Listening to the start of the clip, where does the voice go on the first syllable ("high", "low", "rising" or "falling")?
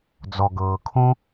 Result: low